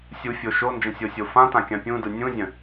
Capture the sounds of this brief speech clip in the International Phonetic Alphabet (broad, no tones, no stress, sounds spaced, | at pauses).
sʲ u fʲ o ʃ o n d͡ʒ ə̃ sʲ o sʲ o f ã t ã kʲ ã pʲ ũ d ɯ nʲ ũ zʲ ə̃